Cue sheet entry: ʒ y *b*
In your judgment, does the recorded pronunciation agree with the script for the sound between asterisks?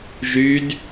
no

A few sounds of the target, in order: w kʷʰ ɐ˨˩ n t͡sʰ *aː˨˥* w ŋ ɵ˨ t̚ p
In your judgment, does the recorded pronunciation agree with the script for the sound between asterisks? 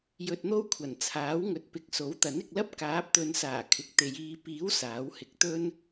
yes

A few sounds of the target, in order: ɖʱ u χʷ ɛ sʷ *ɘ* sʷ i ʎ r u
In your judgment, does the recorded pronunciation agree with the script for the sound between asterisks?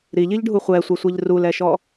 no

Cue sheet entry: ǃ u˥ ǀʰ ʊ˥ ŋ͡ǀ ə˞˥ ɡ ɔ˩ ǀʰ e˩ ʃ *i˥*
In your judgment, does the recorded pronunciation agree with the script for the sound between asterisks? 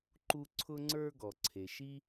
yes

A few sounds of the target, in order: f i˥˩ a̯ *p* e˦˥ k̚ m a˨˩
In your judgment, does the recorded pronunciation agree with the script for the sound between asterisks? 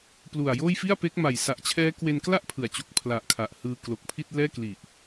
yes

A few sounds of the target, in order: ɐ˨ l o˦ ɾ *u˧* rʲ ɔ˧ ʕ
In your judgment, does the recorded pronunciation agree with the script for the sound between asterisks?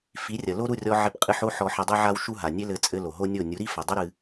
no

